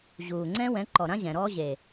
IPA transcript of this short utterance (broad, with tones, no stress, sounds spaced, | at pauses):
ʑ uː˨ ŋ͡ǀ ɛ̃˦ w ɛ̃˨˦ ǃ ɔ˨ ɾ ã˦ ʑ ɛ̃˨ ɾ ɔː˦ ʑ e˨